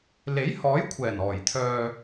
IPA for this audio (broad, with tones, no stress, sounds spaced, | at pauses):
l e˨˥ j h ɔː˨˥ j kʷʰ ɛː˨˩ n ɔː˨˩ j t̪ʰ œː˨